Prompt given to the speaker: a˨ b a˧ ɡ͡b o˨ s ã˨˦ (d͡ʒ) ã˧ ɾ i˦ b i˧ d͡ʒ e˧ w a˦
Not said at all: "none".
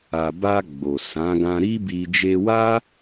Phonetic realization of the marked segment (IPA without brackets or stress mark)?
ɡ